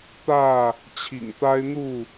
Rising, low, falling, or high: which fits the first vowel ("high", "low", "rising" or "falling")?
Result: falling